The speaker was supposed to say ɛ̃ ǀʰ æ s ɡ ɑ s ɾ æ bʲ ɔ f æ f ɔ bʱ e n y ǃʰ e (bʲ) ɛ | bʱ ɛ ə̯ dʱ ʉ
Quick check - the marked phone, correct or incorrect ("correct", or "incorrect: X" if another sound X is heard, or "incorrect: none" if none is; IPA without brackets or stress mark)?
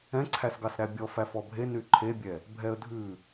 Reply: correct